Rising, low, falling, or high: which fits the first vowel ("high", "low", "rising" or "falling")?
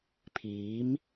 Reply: rising